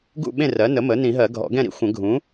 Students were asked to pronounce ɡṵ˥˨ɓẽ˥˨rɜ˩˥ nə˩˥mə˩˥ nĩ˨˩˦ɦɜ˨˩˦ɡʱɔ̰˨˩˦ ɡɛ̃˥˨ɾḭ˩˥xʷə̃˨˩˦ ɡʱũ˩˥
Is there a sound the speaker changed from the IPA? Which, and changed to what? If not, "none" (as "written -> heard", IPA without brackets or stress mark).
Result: none